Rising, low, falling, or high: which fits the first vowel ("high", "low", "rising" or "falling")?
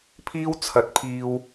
high